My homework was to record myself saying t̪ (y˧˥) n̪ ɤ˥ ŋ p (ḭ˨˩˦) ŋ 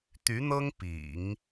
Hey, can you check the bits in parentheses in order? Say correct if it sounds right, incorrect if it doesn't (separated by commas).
correct, correct